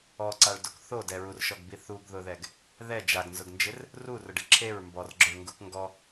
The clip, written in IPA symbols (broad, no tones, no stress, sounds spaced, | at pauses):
ɔ ǀ a ɭ d o k θ o d ɛ ɹ u r ʃ ɔ ɡ b i θ u ɡ ð ʊ ð ɛ ɡ | ð ɛ d͡ʒ a ɡ n z ʊ ɡ n d͡ʒ ɪ r | r u r ʊ ɖ ɪ ǁʰ e ɹ m b ɔ r ɡ͡ǁ ʊ ɭ ŋ ɡ u k ŋ ɡ ɔ